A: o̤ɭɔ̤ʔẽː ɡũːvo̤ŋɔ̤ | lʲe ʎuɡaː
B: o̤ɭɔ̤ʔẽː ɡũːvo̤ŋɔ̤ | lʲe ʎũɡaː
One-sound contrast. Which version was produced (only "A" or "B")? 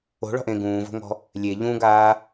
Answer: B